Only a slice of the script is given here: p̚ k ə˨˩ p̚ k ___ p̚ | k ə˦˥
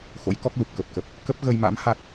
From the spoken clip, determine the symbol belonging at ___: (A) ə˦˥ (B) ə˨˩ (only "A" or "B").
B